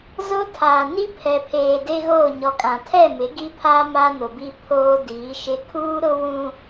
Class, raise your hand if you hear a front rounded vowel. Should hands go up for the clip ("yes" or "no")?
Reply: no